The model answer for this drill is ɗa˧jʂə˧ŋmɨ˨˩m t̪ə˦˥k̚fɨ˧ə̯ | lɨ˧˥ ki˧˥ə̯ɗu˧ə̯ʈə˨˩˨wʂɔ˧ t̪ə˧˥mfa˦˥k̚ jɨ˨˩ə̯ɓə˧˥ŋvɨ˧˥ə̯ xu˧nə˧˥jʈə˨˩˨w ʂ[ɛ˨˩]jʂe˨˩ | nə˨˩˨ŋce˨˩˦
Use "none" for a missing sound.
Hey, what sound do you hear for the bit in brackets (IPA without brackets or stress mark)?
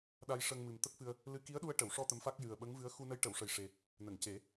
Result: ə˨˩